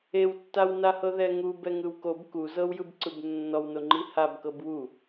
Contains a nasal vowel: no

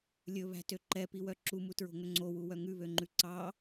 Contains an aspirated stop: no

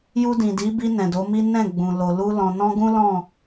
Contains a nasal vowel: yes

